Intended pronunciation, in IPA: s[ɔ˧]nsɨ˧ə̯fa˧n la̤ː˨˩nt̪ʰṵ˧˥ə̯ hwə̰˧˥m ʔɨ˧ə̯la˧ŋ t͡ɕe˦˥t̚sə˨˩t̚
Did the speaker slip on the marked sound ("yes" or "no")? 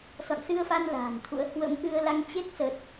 yes